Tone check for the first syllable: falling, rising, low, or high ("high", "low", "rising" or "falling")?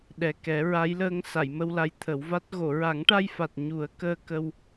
low